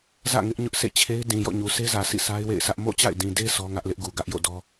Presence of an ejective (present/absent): absent